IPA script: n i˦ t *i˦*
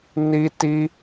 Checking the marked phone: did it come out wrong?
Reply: no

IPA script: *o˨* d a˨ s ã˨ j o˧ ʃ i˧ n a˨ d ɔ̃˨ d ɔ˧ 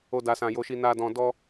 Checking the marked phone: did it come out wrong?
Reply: no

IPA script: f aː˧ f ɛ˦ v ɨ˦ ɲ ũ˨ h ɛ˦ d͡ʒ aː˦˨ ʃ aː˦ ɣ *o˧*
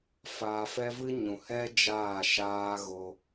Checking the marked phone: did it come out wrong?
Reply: no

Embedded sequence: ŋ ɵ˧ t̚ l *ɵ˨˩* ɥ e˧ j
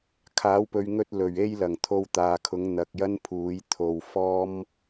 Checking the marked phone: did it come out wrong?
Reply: no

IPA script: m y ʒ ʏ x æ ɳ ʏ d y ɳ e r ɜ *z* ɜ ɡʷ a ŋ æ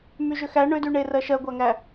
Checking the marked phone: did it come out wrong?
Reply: yes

